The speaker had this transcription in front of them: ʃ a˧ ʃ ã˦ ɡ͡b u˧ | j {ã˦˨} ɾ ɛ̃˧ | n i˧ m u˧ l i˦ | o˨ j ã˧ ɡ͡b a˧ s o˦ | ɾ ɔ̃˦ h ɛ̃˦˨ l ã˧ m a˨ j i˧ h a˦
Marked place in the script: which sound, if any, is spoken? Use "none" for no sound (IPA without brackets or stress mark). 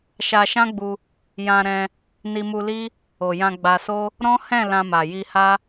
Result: ã˧